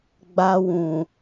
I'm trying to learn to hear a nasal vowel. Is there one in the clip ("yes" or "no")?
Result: yes